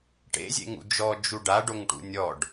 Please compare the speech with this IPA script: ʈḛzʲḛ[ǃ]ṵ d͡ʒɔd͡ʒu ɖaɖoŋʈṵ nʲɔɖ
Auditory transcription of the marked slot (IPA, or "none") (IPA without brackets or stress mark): ŋ